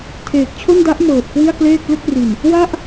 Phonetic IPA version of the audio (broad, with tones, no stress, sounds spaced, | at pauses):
tʰ eː˨˩ k̚ t͡ɕʰ o˥˩ n d a˦˥ ʔ m ɤː˨˩ t̚ k w i˥˩ a̯ k l eː˥˩ k̚ l ɯ˥˩ k̚ r i˨˩ n | w a˥˩ ʔ